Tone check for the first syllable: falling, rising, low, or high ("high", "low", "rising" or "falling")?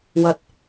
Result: low